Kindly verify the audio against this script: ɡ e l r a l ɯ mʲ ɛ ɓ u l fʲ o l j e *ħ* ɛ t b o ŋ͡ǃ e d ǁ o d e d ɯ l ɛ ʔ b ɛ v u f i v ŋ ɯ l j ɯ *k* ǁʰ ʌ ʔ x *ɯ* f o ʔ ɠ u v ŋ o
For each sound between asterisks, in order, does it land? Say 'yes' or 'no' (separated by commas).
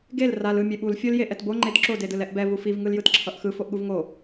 no, no, yes